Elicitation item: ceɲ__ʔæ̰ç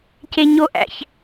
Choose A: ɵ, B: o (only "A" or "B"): B